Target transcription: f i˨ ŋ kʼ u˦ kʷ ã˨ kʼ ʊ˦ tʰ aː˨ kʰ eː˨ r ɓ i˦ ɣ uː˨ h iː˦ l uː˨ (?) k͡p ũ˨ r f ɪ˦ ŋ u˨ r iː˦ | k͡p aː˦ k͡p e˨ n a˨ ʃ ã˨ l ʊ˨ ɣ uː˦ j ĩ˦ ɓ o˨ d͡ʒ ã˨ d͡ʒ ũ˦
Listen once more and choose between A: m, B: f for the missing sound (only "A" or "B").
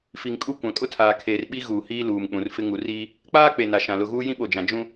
A